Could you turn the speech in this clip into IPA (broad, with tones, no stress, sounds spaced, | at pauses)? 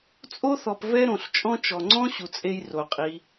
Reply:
t͡sʼ o˥ θ ɔ˨ p v ɛ˦ ɾ õ˩ ɬ t͡ʃʼ ɔ̃˦ t͡ʃ ɔ˩ ŋ͡ǀ ɔ̃˥ ɕ u˨ t͡sʼ e˦ j r o˩ qʼ i˨